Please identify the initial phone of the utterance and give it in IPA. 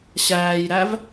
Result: ɕ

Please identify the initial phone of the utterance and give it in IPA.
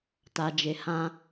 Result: t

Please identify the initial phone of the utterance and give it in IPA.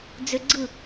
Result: d͡z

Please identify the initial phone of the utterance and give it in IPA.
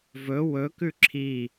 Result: v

